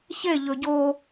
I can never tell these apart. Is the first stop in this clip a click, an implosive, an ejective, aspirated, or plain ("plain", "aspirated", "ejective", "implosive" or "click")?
plain